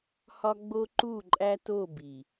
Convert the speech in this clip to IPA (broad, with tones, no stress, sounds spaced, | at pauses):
h ɒ˦ ɡ͡b o˦ ǃ u˦˨ ǃʼ æ˦ t o˦˨ b i˨